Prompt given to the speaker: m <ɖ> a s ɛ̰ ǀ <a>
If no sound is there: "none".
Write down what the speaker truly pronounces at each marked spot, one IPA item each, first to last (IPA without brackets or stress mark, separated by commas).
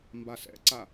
b, a